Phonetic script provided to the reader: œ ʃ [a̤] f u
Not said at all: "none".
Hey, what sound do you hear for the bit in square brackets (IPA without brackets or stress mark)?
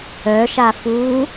a